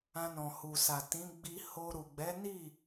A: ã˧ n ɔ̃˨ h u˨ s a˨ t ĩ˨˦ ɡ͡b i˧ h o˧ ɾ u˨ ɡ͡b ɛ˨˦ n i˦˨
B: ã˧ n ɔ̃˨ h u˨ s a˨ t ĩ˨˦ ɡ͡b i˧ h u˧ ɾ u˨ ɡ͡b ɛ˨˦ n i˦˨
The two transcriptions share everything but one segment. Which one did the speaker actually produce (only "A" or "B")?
A